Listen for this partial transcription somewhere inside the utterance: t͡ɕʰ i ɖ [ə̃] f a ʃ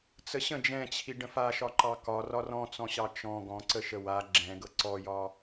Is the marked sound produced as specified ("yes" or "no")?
yes